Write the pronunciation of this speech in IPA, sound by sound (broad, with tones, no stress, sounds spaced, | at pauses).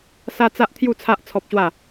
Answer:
s a˦ t͡s a˦ ʔ t̪ʰ j u˥˧ t͡sʰ a˦ ʔ t͡sʰ ɔ˦ p̚ ɕ w a˥˧